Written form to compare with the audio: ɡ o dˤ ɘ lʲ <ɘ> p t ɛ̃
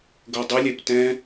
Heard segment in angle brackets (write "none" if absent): ɛ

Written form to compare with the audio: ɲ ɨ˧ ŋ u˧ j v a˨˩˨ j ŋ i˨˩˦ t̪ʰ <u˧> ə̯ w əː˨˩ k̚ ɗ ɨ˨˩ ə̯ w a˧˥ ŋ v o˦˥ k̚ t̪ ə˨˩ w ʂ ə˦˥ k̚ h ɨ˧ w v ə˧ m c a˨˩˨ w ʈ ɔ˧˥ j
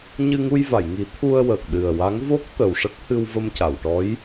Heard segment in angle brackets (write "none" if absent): u˧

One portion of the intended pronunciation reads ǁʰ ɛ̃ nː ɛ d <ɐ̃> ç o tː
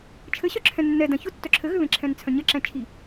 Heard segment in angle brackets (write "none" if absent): ɐ̃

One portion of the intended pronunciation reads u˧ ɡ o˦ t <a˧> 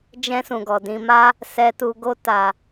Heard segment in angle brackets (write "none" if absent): a˧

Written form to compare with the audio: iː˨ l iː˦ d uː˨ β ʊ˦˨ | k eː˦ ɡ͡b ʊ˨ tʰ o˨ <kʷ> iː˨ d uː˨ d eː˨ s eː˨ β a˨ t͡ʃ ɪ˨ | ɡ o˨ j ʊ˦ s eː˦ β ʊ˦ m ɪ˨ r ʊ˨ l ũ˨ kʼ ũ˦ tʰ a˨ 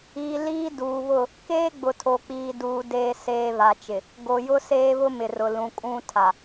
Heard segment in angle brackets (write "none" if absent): k͡p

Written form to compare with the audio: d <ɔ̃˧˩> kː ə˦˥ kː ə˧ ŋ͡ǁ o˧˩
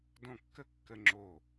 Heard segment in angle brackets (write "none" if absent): ɔ̃˧˩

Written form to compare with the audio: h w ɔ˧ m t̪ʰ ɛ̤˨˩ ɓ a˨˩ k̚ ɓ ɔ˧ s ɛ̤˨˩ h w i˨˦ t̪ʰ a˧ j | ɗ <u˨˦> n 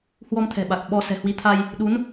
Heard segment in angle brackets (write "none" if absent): u˨˦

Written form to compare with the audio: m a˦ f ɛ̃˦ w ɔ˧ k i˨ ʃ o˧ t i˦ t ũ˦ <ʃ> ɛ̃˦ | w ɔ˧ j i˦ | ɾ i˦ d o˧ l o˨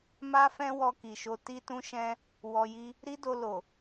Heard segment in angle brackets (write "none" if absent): ʃ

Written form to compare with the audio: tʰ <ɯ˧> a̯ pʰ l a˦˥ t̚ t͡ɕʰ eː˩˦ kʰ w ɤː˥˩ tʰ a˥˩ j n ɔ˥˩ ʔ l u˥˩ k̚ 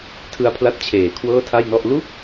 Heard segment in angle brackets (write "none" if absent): ɯ˧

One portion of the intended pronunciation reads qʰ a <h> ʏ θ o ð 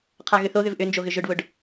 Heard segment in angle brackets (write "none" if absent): ɣ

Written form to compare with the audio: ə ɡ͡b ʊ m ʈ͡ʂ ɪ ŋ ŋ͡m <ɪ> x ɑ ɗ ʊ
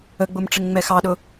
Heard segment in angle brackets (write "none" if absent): ɛ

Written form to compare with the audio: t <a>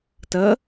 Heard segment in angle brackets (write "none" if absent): ə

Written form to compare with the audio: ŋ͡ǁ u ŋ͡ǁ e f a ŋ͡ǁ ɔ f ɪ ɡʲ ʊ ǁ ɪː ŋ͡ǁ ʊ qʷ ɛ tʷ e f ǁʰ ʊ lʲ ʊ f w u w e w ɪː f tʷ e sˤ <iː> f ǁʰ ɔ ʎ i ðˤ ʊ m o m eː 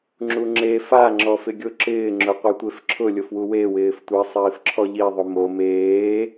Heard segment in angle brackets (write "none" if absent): iː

